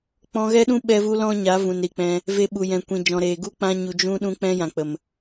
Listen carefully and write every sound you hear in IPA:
k͡p ɔ̃˧ ɣ ɛ˦ ɗ ũ˦ ɓ ɛ˧ v u˧ l ɔ̃˦ ɲ a˨˦ v ũ˨ n ɾ i˨ k͡p ɛ̃˧ | v e˧ ɓ u˨ j ɛ̃˨ kʷ ĩ˨ d͡ʒ ɔ̃˨ ɾ eː˨ ɡ u˦ k͡p ã˧ ɲ u˨ d͡ʒ ũ˧ ɗ ũ˧ k͡p ɛ̃˧ j ã˨ k͡p ə˨ m

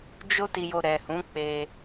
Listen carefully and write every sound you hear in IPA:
d͡ʒ o˦ t i˧ j o˧ ɾ ɛ˨ h ũ˨˦ k͡p e˧

